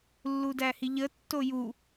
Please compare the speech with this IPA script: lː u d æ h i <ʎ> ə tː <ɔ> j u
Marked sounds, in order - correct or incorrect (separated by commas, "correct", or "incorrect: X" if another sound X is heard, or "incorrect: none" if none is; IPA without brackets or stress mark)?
correct, incorrect: o